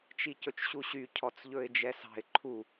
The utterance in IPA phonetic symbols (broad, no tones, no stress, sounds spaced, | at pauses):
t͡ʃ i c ɵ t͡ʃ ɕ u ɕ y cʰ ɔ t͡s ʎ ɵ ɪ̯ d͡ʒ ɛ s ɑ̤ ɪ̯ ǃʰ u